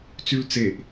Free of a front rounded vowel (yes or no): no